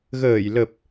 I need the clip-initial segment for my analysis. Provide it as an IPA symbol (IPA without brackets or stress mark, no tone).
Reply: ɣ